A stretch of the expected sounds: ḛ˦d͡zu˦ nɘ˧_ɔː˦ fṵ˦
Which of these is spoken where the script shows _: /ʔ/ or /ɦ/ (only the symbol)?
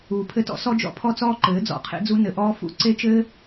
ʔ